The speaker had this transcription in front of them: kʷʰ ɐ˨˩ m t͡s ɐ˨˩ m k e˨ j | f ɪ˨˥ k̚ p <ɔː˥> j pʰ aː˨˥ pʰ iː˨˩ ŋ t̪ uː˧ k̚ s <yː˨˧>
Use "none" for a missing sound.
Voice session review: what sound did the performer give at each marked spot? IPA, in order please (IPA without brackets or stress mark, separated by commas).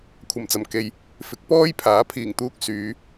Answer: ɔː˥, yː˨˧